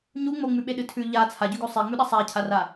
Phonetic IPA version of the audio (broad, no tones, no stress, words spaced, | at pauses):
ɲu ŋ͡moŋ͡mʉɓeɗɨ tʰʉ ʎa t͡sʰaɟʉɡo sˤeŋ͡mʉɗɐ sˤacʰara